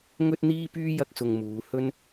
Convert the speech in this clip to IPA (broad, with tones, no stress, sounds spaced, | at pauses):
ŋ ɵ˥ t̚ n̪ iː˥ p yː˥ j ɐ˥ k̚ s ʊ˧ ŋ m uː˨˧ h ɵ˥ n